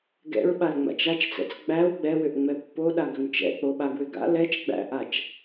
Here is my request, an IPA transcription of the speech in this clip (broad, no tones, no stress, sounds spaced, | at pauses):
ɡ ɛ̰ ɹ ɓ a l ŋ͡m a̰ t͡ʃ a t͡ʃ t͡s ɛ̰ t͡s ɡ͡b æ w ɡ͡b ɛ w ʏ ʔ ŋ͡m ɛ pː o ɗ a ɡ ʏ m t͡ʃ ɛ̰ k͡p o ɓ a ɡ w ʏ ɡ a̰ l ɛ t͡ʃ ɡ͡b æ̰ ʔ a t͡ʃ